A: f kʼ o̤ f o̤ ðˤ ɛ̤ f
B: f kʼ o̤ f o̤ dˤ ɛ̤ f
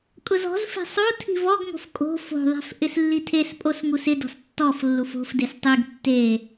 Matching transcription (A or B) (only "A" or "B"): A